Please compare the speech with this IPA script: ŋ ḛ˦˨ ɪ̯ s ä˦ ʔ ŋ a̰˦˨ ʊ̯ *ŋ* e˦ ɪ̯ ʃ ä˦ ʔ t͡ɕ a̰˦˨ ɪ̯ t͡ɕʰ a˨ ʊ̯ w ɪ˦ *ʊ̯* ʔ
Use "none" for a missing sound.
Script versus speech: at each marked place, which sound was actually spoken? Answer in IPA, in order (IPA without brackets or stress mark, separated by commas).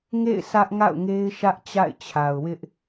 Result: ŋ, none